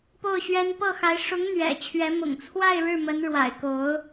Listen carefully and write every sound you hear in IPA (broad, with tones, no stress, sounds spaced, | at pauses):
p o˥˩ ʊ̯ ɕ ɥ ɛ˥ n p ɤ˥˩ x a˧˥ ɪ̯ ʂ ʊ˧˥ ŋ n̪ ɥ ɛ̰˨˩ t͡ɕʰ ɥ ɛ˧˥ m ʊ̰˨˩ ŋ t͡sʰ w a˥˧ ɪ̯ ɻ ɻ̩˥˩ m ə˧˥ n ɻ w a̰˨˩ ɪ̯ k o˧˥ ʊ̯